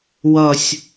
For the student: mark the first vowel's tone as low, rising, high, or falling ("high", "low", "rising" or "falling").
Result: falling